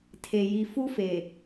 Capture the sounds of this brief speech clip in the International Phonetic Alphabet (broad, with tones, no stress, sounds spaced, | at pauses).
tʰ e˨ j i˨ f u˦ f e˨